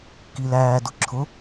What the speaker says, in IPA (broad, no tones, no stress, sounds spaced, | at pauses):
k i l æː d ʊ ǁʰ ʊ